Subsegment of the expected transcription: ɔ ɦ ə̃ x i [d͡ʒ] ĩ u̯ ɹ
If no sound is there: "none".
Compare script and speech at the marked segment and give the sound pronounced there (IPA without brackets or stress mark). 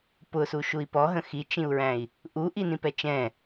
t͡ʃ